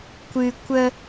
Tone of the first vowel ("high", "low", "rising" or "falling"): high